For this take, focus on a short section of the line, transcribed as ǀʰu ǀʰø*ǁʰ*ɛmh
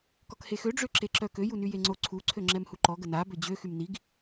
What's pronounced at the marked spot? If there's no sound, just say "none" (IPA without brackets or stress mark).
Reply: ŋ͡ǁ